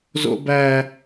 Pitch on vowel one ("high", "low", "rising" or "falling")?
high